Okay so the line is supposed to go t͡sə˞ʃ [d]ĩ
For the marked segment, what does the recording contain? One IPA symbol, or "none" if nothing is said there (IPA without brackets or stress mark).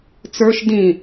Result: d